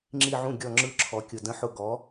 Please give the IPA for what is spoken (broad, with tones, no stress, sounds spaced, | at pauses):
ŋ͡ǁ i˦˨ ʕ ũ˦˨ ɡʲ ɔ˦˨ ŋ͡ǁ ɯ˦˨ ǁʰ ɔ˧˥ kʲ ʊ˦˨ d ə̃˧˥ ħ ʊ˦˨ ɡ ɔ˧˥